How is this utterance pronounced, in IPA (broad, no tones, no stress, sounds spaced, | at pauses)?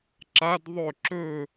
ǁ a d ðˤ ɵ ǁ ɵ